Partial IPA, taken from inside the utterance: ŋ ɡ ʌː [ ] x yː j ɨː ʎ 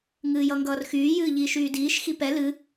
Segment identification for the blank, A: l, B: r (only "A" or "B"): B